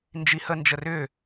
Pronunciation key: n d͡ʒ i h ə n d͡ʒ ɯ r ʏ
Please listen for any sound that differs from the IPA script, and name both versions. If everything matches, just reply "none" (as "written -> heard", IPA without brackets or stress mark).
ɯ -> ə